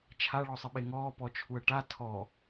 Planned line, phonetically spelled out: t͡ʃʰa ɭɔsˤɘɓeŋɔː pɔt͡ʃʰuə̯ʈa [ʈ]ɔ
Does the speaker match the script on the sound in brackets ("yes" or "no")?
no